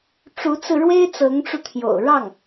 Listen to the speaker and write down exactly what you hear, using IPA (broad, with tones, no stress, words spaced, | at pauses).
ʈ͡ʂu˧˥t͡sɹ̩˧ɻwe˥ɪ̯ t͡sɤ˧˥ŋʈ͡ʂu˧t̪ʰjo̰˨˩ʊ̯ ɻɑ˥˩ŋ